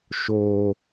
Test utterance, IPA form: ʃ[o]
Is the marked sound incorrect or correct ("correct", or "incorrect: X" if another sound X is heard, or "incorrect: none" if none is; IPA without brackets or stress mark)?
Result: correct